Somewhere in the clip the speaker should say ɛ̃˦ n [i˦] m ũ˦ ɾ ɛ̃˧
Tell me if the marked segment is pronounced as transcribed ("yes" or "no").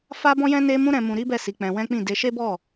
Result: no